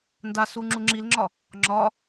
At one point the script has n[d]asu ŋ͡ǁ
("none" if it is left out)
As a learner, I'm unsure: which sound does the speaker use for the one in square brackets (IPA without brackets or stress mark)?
d